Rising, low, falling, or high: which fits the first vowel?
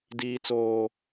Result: high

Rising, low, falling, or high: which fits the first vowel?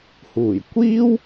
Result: low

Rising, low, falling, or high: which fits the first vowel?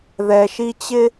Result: low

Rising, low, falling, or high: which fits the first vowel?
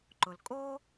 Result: low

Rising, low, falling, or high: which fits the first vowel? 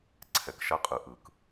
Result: low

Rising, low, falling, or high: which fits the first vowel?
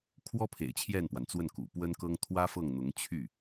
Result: high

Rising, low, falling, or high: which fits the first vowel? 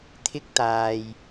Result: high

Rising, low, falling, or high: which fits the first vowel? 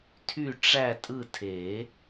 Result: falling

